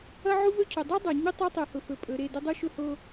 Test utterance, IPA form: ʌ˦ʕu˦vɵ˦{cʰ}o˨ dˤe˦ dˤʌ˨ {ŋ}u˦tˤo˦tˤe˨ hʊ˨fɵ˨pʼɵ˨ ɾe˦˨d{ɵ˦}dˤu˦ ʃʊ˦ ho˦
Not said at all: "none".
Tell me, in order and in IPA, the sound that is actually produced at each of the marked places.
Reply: cʰ, ɲ, ɵ˦

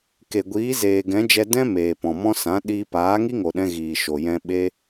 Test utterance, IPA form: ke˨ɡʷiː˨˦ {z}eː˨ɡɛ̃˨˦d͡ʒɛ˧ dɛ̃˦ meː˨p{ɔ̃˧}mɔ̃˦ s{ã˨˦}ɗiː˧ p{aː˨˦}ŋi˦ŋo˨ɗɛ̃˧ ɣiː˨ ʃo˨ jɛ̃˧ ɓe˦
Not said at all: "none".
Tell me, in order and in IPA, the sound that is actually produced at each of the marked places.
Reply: z, ɔ̃˨, ã˨˦, aː˨˦

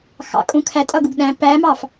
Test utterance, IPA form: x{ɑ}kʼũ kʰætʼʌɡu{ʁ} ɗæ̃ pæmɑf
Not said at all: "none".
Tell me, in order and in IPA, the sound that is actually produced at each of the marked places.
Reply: ɑ̰, ɡ

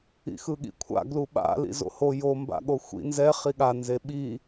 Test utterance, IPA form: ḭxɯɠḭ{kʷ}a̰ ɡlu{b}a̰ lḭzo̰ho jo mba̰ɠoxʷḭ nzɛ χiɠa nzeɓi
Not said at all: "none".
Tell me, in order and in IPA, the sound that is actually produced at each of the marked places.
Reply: kʷʰ, ɓ

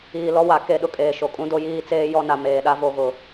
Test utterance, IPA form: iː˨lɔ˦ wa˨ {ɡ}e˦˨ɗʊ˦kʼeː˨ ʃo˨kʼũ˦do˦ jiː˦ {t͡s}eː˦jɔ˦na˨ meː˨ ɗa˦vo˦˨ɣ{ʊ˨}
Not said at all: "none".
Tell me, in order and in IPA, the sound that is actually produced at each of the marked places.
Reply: k, t͡s, ʊ˨

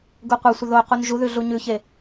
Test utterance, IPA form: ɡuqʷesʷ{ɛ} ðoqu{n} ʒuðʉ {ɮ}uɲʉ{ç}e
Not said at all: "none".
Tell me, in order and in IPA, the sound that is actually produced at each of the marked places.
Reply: ə, n, ɮ, ç

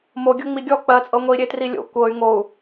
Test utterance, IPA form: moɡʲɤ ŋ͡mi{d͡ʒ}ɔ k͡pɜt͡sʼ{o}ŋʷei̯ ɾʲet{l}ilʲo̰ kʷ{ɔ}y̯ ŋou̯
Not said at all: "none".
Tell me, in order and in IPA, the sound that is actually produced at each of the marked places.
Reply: ɡʲ, ɤ, r, ɤ

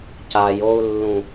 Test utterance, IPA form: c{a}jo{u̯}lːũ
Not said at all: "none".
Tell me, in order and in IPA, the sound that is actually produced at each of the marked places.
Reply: a, u̯

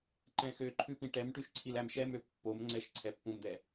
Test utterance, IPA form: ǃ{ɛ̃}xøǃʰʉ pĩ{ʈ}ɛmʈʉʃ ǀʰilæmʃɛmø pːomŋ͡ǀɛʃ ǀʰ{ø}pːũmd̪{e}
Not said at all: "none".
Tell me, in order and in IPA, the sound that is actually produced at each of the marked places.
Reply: ɛ̃, ʈ, ɛ, ɛ

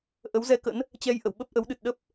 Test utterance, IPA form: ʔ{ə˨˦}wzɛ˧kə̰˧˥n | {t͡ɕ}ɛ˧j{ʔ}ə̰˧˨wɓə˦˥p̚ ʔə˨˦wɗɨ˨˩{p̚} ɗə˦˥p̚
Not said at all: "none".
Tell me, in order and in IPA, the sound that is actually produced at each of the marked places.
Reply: ə˨˦, t͡ɕ, ʔ, t̚

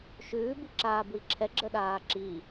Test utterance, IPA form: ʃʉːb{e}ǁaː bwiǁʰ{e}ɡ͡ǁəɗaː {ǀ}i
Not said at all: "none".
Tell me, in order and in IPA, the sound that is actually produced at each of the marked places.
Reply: i, ɛ, ǁ

